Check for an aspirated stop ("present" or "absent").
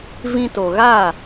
absent